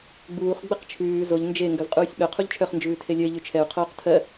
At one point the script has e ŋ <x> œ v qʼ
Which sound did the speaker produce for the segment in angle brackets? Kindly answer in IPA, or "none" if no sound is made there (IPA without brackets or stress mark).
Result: ɡ